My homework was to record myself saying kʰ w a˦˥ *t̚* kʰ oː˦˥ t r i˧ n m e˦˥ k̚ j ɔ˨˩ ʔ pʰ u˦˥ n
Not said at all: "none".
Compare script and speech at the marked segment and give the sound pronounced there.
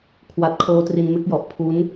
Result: t̚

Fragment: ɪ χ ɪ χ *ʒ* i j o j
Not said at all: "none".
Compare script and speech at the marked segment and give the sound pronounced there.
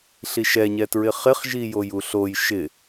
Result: ʒ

